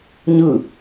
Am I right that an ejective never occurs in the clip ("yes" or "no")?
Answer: yes